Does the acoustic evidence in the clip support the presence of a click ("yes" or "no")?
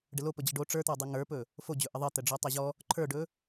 yes